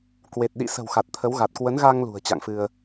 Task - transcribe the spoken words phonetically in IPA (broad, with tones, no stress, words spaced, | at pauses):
kwe˨˩t̚ ɗḭ˧˨sə̤˨˩w xa˨˩t̚t̪ʰə˨˦wɣa˨˩t̚ kwə˨˦nɣa˧ŋ lṳ˨˩ə̯t͡ɕa̰˧˨ŋfɨ˧ə̯